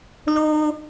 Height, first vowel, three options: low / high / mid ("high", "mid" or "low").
mid